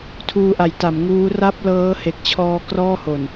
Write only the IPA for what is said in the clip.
tʰ uː˧ ʔ a˩˦ j t a˩˦ m ŋ uː˦˥ r a˥˩ p̚ l ɤː˦˥ h e˨˩ k̚ t͡ɕʰ ɔː˧ k r ɔː˥˩ h o˨˩ n

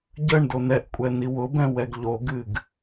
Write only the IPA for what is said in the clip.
ɟ ə ɳ d o n ɛ ʔ kʷʼ ɛ n i w ʊ b ɛ̃ w ɛ ɡ ʎ o ɡ ɨ ɡ

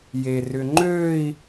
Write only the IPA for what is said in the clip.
j e r ʏ ŋ͡ǃ ø i̯

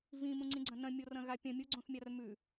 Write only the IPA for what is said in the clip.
v ĩ m ũ ŋ͡ǀ ĩ ɡ͡ǀ ɐ̃ n ɐ̃ mʲ o r ɐ̃ ɣ a pʲ ɐ̃ mʲ u ɡ͡ǀ õ θ mʲ a r m ʉ

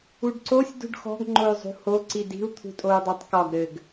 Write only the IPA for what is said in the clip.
u ɖ ǀ o sʲ d ṳ ɖ x ɔ̤ ɡ ŋ͡ǃ o y̯ zˤ ṳ h o ǀ i d i̤ u̯ t̪ʰ ṳ tʼ o u̯ dˤ ɑ tˤ k ɒ ɡ ɾ ɘ ɡ

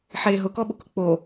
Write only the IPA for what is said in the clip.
ħ e ɦ ʊ k ɔ ɓ ʊ k ʊ k͡p o

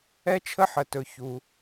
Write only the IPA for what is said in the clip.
ɛ˥ t͡ʃʰ ə˥ ħ ə˩ t ɵ˩ ç u˩

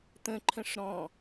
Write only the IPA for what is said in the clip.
t̪ ə̃ ǃʰ ə̃ ʂ ɾ ɔ̃

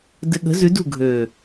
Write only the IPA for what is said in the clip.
d ɘ˨ ɠ ə̤˨˦ z ʉ˨˦ d ṳ˦˨ ɡʱ øː˨

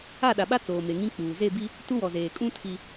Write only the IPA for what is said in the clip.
a˦˨ ɗ a˨ ɓ a˦ t͡s oː˨ m e˨ ŋ ĩ˦ k͡p uː˨ z e˦˨ b i˦ | t u˦ w ɔ˨ z eː˨ kʼ ũ˦ tʰ i˦

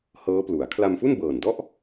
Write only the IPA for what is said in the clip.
h ɤː˦˥ p l u˩˦ a̯ kʰ l a˧ m f u˥˩ n b ɤː˨˩ n d ɔ˥˩ ʔ

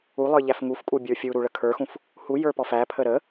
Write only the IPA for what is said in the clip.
u lˠ ə˞ ʎ æ f ŋ u f kʼ u bʲ ə˞ fʲ u ɾ u ɭ ə kʰ ə˞ x ũ f | h u j ə˞ p ɔ f æ pʰ ə ɾ ə

